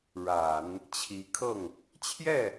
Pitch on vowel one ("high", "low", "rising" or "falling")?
low